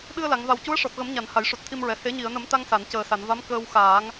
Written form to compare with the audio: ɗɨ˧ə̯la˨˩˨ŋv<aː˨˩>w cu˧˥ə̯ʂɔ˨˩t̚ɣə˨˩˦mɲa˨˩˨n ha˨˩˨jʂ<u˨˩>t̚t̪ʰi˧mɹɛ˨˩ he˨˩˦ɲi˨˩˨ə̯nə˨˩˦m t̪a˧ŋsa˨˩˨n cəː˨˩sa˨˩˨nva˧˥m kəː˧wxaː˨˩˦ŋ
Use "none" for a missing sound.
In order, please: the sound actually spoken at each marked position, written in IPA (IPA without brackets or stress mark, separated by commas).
a˨˩, u˨˩